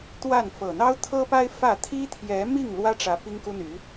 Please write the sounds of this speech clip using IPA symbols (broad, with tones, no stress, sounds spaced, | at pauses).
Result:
t̪ w a˥˩ n f ɤ˨˩ n̪ ɑ˥ ʊ̯ t̪ʰ ɤ˥ p a˥ ɪ̯ f ä˥˩ t̪ʰ i˥ t̪ʰ j ɛ˧˥ m i˥˩ ŋ l w ä˥ ʈ͡ʂ ä˧˥ p i˥ ŋ k u˥ n̪ y˧˥